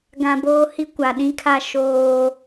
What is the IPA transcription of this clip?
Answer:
ɡ ã˨ b oː˦ h i˦ kʷ a˨ ɗ ĩ˦ kʰ a˦ ʃ oː˦

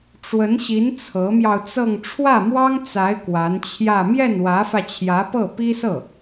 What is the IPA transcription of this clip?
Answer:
ʈ͡ʂ w ə˧˥ n ɕ i˧˥ n t͡sʰ ɤ˧˥ m j ɑ˧ ʊ̯ t͡s ɤ˥˧ ŋ ʈ͡ʂʰ w ä˥˩ m w ɑ˥ ŋ t͡s a˧˥ ɪ̯ k w a˧˥ n t͡ɕʰ j ä˥˧ m j ɛ˥˩ n w ä˧˥ f ä˧ t͡ɕʰ j ä˧˥ p ɤ˥˩ p i˥ s ɤ˥˩

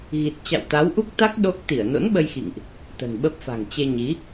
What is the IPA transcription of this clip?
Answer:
ɣ i˨˩ t̚ t͡ɕ a̰˧˨ w t̪ a˨˦ w ʔ u˦˥ k̚ t̪ a˦˥ k̚ ɗ o˦˥ k̚ t̪ i˧˩ ə̯ n o̰˧˥ n ɓ ə˧ j x ḭ˧˨ ŋ ʔ | t̪ ə̤˨˩ n ɓ ə˦˥ p̚ f a̤˨˩ ŋ t͡ɕ e˧ ɲ i˨˦

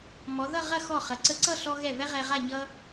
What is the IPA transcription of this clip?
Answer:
m ɔ˩˧ ð ʌ˥˧ ʁ ɐ˥˧ x ɔ˧˩ χ ɐ˩˧ ǀ ə˧ ǀ ʌ˥˧ ɬ ɔ˧ ɣ ɛ˧˩ v ɛ˥ ʁ ɛ˧ ʁ a˥˧ ɲ ʌ˥

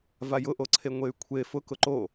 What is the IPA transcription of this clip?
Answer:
v a j ʊ ʔ o ǀʰ e ŋʷ e y̯ kʷʰ e f ʊ k ʊ ǃ o

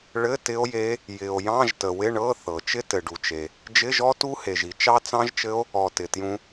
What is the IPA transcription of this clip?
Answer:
ɭ ɘ˧˥˧ t ɪ˦˥ o̯ j e˦˥ | j ɪ˨ o̯ j ɑ̃˧˥˧ ʒ t ə˨ w ɪ˧˥˧ ɳ ɤ˧˥˧ θ ɤ˨ t͡ʃ ɪ˦˥ t ɘ˨ ɖ u˨ t͡ʃ e˨ | d͡ʒ ɪ˧˥˧ ʒ ɔ˦˥ t u˦˥ h e˨ ʒ i˨ t͡ʃ ɑ˦˥ t͡s ɑ̃˦˥ ʒ t͡ʃ ɘ˦˥ o̯ | ɔ˨ t ɪ˨ t j ũ˦˥

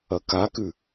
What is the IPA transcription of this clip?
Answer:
ɐ k a k ʉ

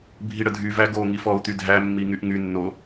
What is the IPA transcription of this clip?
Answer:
bʱ i ɽ ə dʱ y v æ ɡ o ŋ i f ɔ u̯ t̪ y dʱ æ mː i ŋ y ʔ ŋ y nː o

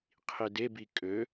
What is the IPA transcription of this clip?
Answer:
qʰ i d e b i kʼ ø

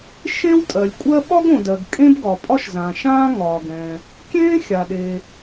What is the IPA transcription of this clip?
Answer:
ʃ ẽ˥ w tʼ ɜ˩ lʲ kʷʼ ɜ˥ ɓ ɒ˥ ɡ õ˩ d ɜ˩ ɡ kʼ ẽ˥ b ɡ ɒ˩ pʼ ɒ˥ ʃ z ã˩ ʃ ãː˥ ŋ ɒː˩ ɡ ɛ̃˩ | kʲ ẽː˥ xʲ a˩ ɗ e˩

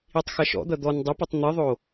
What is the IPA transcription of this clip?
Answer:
i tˤ x ɐ ʃ ɔ̰ d̪ ɐ d̪ ɔ n dˤ ɛ p ɘ tˤ n̪ ɨ ðˤ o

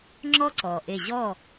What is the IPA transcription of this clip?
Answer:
ŋ͡ǁ ɔ˦ ǀ ɔ˨ ʔ e˦˨ ʑ ɔ˦˨

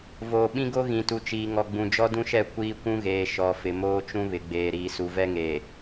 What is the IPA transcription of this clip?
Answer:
v oː˨ ɓ ĩ˦ ɡ o˦ ɣ ĩ˨ t u˨ t͡ʃ iː˨ ŋ ɔ˨ ɡ͡b ũ˨ d͡ʒ ɔ˦ d ũ˦ ʃ ɛ˦˨ kʷ iː˦ kʷ ũ˦ ɣ eː˨ ʃ ɔ˨ f ɪ˨ m oː˦ t͡ʃ ũ˦ β ɪ˨ ɡ͡b eː˨ ɾ iː˨ s u˨ v ɛ˦ ŋ eː˨

